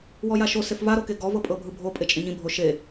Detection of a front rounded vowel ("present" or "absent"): absent